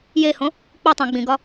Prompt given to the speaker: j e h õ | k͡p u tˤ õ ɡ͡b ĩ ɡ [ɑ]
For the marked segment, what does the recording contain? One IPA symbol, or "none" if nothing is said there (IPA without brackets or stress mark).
ɒ